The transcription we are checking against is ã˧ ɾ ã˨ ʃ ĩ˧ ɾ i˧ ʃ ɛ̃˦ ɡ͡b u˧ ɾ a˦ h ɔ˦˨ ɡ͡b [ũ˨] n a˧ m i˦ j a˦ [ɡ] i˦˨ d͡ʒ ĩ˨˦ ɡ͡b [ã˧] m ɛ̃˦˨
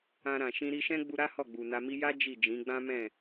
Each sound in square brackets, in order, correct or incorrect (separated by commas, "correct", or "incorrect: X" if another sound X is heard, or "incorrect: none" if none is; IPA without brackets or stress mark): incorrect: u˨, incorrect: d͡ʒ, incorrect: ã˦